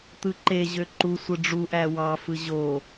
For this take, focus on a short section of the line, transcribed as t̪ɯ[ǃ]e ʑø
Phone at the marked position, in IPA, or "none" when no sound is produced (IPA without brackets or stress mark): ǃ